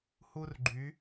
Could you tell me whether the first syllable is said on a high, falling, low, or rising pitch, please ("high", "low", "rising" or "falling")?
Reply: high